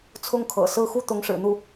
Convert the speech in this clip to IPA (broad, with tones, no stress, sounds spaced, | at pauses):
t͡sʰ ʊ˥˩ ŋ kʰ ɤ̰˨˩ s ɹ̩˥˧ x u˥˩ t̪ ʊ˧˥ ŋ ʂ ɻ̩˨˩ n̪ u˥˩